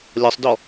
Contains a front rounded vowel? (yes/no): no